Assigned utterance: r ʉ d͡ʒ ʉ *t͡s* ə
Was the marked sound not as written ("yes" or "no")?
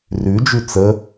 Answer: no